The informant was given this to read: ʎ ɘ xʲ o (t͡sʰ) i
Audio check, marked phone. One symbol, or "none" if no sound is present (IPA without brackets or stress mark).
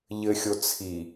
t͡sʰ